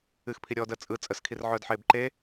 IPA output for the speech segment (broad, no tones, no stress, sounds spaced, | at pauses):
ɨ x pʰ i ɾʲ ɔː d əː t͡sʼ ɯ t͡sʼ ə s kʰ i r ʕ œː d ħ eː b ǃ e